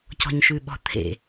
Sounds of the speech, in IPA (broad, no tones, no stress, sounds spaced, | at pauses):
c ɔ̤ ɲ ʃ ʉ ɓ ɔ̤ t̪ʰ ḛ